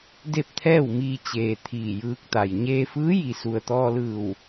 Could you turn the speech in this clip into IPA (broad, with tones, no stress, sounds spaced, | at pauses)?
d e˥˨ p̚ t̪ʰ ɛː˥˨ w m iː˧ t͡ɕ eː˩ t̪ʰ iː˧˩ j ɯː˧ k̚ t̪ a˩ j ɲ eː˧ f ɯː˧˥ j i˩ s u˩ ə̯ t̪ ɔː˧ l ɯː˧˩ w